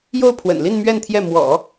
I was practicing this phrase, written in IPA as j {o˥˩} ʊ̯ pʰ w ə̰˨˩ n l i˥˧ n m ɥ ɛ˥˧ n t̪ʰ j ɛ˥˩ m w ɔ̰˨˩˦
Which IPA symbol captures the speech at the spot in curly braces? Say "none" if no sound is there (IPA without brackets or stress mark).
o˥˩